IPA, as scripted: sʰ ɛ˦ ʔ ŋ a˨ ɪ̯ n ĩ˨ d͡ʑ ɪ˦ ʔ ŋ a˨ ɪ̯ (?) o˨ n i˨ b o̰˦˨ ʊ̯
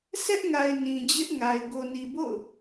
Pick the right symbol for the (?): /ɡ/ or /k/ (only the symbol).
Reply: ɡ